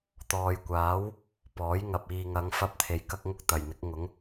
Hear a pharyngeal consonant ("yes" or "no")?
no